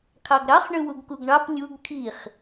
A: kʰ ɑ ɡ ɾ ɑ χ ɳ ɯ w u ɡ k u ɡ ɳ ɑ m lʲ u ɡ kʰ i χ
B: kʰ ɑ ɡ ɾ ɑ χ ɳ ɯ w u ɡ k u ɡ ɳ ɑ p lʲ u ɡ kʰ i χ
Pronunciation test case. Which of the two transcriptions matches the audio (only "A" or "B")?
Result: B